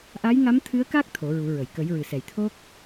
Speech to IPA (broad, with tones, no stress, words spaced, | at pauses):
ʔa˧˥jŋa˧˥mt̪ʰɨ˧˥ə̯ka˦˥k̚ t̪ʰo˨˩˦ɹu˨˩˦ɹə˨˩˨j kə˨˩˦jɹɨ˨˩sɛ˨˩j t̪ʰo˦˥k̚